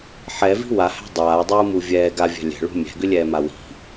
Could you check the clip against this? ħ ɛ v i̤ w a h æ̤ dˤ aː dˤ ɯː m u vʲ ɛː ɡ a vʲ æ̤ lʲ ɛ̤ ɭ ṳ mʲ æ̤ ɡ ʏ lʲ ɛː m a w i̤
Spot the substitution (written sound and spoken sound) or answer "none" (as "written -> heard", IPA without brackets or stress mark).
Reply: none